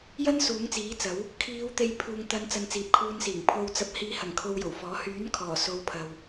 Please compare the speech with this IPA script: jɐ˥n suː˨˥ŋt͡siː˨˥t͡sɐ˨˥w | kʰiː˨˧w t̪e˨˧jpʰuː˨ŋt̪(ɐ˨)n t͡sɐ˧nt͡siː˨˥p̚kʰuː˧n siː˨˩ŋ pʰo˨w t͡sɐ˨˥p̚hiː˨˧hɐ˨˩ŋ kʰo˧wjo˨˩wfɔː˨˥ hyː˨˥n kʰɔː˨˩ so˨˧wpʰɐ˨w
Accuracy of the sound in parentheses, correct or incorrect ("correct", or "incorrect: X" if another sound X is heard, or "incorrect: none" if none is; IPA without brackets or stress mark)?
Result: incorrect: ɐ˨˧